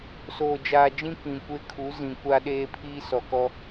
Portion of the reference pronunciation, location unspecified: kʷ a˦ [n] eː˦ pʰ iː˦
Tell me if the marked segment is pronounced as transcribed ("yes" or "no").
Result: no